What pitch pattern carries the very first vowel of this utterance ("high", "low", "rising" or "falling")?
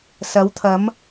rising